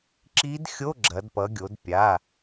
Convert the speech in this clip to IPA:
ǁ i˧˥ d xʲ o˧˥˧ ɡ͡ǁ ɐ˩˧ d p ʌ˩˧ ɡʲ o˩˧ d pʲ a˩˧˩

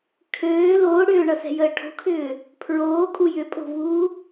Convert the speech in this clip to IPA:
kʰ øː l oː ɽ ʏː ɳ ʌ s ɛ̤ j əː ʈʰ o̤ kʰ ʏː | pʰ ɹ oː kʼ u j ʏ pʼ o̤ v uː

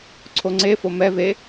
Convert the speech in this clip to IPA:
ǀʰ o ŋ͡ǀ e f o m ɛ v e

